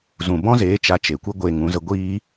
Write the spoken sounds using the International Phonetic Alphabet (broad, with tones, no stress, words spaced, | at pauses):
zũ˨bɔ̃˦zeː˨˦ t͡ʃa˧t͡ʃe˨kʷɨ˦ ɡʷeː˧ŋũ˨˦zə˦ ɡʷiː˦